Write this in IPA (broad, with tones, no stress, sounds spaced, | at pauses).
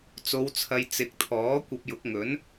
t͡s o˨˧ w t͡sʰ ɐ˨˧ j t͡s ɪ˨ k̚ t̪ʰ ɔː˨˥ kʷ ɐ˧ p̚ j ʊ˨˥ k̚ ŋ ɵ˨˥ n